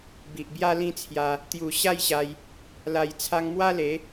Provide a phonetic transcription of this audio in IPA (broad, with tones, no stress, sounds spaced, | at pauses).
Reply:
b i˨ ʔ b j a˦ l ĩ˦ t͡sʰ j a˧ | t̪ j u˨˩ ɕ a˥˧ j ɕ a˧ j | l a˨˩ j t͡sʰ a˧ ŋ m w a˦ l e˨˦